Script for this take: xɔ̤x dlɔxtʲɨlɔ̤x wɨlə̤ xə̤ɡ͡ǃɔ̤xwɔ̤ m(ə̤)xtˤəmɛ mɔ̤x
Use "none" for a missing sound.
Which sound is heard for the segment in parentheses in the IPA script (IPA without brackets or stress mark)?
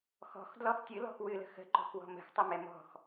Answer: ə̤